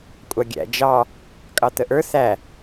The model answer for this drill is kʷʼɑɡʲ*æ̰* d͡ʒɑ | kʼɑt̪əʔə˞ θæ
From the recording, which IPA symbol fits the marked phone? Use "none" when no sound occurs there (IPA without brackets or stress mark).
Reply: æ̰